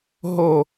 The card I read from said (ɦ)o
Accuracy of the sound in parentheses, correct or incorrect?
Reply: correct